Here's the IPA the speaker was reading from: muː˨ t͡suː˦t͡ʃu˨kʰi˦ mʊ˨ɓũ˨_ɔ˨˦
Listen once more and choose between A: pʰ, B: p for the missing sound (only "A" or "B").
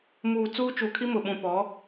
B